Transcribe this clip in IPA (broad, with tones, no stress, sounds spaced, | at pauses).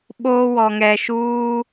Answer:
ɓ o˦ w ɔ˨ ŋ ɛ˨ ʃ uː˦